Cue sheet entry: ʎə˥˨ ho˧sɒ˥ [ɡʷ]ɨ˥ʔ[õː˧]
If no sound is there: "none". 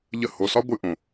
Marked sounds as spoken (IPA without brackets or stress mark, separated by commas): ɡʷ, õ˧